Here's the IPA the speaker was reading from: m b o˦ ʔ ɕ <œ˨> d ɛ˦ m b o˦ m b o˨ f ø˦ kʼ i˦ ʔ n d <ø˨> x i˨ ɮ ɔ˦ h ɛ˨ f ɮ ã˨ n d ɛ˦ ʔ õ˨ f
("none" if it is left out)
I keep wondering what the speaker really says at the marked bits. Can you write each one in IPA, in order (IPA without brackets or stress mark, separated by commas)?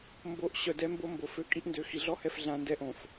œ˨, ø˨